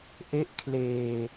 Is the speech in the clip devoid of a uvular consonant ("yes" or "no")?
yes